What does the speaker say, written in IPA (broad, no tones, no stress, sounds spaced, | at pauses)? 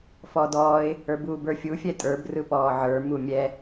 f ɔ d ɔː ɪ̯ | ə˞ b uː b ə˞ fʲ u fʲ ɛ tʼ ə˞ b r ɯ p ɔː ʕ ə˞ m u mʲ ɛ